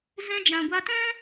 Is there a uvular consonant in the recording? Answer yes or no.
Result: no